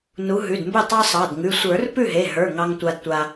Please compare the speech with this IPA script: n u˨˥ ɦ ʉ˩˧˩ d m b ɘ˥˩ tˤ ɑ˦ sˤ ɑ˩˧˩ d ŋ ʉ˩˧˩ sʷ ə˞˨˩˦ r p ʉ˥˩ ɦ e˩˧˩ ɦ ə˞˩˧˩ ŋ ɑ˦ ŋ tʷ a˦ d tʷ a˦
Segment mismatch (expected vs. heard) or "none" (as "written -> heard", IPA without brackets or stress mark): none